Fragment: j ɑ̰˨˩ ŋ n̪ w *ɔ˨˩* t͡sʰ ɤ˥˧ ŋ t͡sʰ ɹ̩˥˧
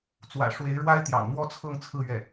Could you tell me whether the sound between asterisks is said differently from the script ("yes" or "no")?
yes